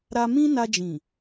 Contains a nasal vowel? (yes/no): yes